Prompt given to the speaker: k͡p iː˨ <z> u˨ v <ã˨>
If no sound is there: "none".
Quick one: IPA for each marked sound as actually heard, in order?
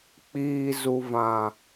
z, ã˨

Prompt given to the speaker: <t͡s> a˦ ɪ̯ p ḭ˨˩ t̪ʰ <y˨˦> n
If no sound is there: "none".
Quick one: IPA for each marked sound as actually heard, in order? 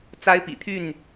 t͡s, y˥˨

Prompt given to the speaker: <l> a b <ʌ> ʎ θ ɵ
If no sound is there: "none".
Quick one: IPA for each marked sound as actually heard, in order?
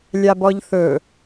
lʲ, ɔ

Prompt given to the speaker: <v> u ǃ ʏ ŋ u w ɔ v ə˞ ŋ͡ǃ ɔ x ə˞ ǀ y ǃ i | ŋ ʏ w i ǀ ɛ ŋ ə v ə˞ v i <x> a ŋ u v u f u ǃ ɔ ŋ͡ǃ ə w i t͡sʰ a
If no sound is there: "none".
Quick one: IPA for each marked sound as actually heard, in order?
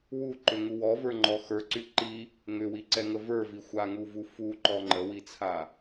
w, xʷ

